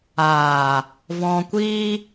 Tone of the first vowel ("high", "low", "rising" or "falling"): low